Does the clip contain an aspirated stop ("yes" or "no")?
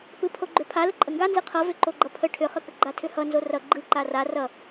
yes